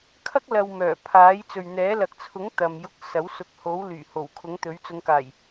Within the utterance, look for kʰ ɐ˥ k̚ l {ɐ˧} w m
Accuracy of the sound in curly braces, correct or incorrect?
correct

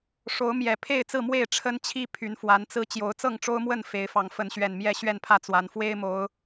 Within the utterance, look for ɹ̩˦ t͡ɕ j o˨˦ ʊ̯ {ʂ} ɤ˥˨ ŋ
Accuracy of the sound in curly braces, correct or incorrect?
incorrect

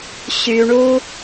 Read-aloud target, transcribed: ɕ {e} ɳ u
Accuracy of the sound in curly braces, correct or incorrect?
incorrect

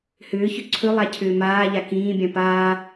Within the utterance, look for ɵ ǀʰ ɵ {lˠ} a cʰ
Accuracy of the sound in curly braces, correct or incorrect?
correct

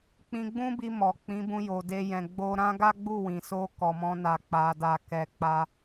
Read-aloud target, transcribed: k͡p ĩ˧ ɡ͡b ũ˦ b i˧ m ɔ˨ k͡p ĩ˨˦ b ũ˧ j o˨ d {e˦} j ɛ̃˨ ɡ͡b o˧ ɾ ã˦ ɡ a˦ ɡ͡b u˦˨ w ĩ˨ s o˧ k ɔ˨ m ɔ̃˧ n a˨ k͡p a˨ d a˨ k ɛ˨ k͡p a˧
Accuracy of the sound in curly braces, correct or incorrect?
incorrect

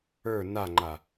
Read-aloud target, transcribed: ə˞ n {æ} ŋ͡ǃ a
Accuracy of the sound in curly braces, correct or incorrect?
incorrect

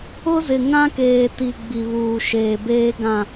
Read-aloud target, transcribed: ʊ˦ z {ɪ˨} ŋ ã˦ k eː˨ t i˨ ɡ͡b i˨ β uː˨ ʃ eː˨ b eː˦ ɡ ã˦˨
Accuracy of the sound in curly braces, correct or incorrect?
correct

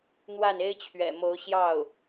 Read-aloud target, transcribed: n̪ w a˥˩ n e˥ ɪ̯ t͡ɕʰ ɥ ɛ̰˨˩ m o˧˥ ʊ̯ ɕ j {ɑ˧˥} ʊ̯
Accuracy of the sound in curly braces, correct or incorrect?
incorrect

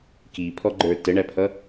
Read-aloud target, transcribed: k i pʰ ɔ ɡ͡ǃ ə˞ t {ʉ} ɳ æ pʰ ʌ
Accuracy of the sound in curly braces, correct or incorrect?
incorrect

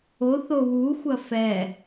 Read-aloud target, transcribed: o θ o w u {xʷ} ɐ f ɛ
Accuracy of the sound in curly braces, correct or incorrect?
correct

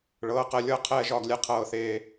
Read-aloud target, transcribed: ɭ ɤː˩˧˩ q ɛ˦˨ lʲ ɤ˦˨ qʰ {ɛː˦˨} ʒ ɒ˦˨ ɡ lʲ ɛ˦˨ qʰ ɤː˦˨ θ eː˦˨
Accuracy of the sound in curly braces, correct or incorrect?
correct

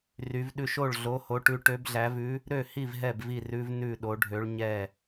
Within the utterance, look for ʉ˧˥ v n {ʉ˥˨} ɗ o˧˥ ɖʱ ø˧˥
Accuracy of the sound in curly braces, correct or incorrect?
correct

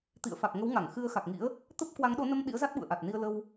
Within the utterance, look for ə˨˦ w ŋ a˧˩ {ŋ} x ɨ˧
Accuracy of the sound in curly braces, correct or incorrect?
correct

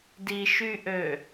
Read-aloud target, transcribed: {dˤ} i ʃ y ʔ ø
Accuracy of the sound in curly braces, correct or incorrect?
incorrect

